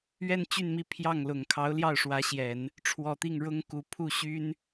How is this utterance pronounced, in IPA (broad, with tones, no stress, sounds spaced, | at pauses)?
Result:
ɥ ɛ˥˧ n t͡ɕ y˥˧ n m i˥˧ pʰ j ɑ˥˩ ŋ l ʊ˨˩ ŋ kʰ ɑ˧˥ ʊ̯ l j ɑ˥˩ ʊ̯ ʂ w ä˧˥ ɕ j ɛ˨˩˦ n | ʈ͡ʂʰ w ɔ˨˩ t̪ i˥˩ ŋ ɻ ʊ˥ ŋ k u˧˥ pʰ u˥˩ ɕ y˥ n